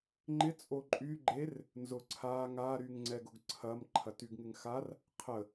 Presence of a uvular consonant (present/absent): present